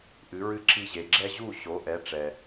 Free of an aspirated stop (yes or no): yes